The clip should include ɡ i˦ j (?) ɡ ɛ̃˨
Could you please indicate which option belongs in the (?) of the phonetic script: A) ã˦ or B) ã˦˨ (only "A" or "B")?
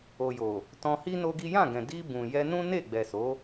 B